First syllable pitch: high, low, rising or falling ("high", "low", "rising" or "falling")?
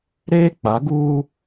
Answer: high